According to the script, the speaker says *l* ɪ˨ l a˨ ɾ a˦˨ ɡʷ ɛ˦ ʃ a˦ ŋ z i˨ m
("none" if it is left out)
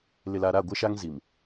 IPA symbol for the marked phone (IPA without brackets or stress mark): l